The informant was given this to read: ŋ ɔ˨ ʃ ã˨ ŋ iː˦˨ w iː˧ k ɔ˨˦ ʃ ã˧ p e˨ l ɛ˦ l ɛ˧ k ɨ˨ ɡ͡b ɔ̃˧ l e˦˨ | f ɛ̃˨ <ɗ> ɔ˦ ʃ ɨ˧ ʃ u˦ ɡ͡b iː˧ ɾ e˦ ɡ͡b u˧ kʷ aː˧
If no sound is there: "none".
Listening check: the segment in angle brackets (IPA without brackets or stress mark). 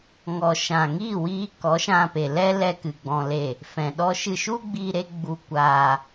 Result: ɗ